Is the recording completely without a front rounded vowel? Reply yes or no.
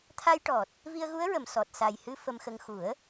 yes